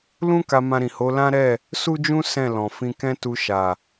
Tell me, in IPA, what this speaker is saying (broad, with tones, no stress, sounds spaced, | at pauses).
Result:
l ũ˦ k a˧ m ã˧ ɾ ĩ˨ h o˨˦ l ã˦ ɾ ɛ˦˨ | s u˦ d͡ʒ ũ˦ s ɛ̃˦˨ l ɔ̃˨ f ĩ˧ k ɛ̃˦ t u˧ ʃ a˨